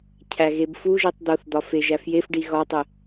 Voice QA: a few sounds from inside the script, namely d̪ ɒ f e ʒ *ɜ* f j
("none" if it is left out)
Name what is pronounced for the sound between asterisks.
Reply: æ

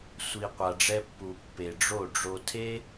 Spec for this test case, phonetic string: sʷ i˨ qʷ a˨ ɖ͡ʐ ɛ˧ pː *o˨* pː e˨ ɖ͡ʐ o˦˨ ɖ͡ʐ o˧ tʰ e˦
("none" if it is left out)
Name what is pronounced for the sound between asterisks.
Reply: u˨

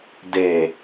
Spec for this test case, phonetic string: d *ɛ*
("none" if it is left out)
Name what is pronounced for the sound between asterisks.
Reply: e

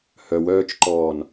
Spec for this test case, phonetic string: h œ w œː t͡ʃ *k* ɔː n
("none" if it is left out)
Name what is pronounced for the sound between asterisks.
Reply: ǃ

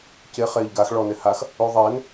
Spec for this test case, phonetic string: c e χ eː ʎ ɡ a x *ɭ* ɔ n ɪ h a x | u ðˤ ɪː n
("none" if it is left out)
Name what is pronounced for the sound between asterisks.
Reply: ɭ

